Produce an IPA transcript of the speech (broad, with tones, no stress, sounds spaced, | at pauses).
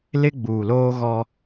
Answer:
l ɪ˦ ɡ͡b uː˨ l oː˦ ɣ ɔ˦